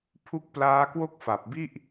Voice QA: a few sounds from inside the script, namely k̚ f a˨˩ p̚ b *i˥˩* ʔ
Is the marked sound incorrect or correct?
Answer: correct